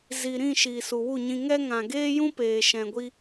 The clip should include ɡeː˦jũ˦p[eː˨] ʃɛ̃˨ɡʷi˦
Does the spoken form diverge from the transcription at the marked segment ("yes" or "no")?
no